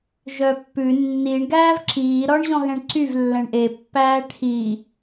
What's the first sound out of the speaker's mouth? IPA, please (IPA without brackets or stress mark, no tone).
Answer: ʒ